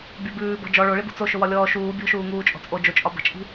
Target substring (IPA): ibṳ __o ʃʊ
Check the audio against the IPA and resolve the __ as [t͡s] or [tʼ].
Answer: t͡s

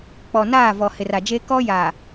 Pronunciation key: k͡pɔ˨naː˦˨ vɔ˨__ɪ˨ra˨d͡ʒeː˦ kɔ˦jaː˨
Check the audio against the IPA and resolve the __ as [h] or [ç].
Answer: h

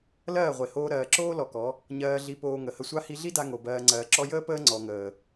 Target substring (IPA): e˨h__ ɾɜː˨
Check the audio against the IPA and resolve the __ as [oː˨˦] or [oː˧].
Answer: oː˧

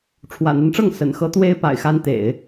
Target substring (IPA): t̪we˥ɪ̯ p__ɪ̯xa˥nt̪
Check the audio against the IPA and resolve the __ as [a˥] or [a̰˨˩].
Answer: a̰˨˩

